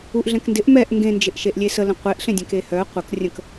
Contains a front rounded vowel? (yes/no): yes